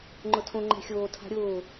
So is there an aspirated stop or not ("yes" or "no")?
yes